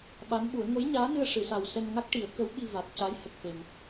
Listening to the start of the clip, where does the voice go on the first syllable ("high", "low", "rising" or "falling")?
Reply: rising